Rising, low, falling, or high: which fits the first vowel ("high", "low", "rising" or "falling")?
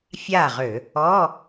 falling